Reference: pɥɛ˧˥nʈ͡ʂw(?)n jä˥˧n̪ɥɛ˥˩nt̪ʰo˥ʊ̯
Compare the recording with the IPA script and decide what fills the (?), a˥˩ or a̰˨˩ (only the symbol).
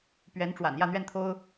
a̰˨˩